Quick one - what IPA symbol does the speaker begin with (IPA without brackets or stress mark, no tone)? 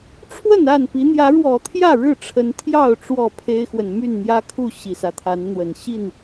ʈ͡ʂʰ